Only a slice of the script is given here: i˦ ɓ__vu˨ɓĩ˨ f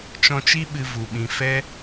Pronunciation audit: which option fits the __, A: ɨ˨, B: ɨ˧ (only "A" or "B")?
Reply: B